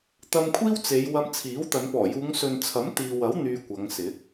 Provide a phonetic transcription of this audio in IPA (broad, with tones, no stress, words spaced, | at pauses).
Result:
t̪ɐ˧mkʷʰiː˥wt͡se˨˧j wɐ˧mt͡sʰiː˨˥wt̪ɐ˨˧n pɔː˨˩juː˨˧ŋsɵ˨nt͡sʰɐ˨˥m t̪iː˨wɐ˨˥w n̪yː˧kʷɐ˨˧ŋsɪ˨˥k̚